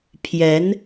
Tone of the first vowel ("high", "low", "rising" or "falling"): rising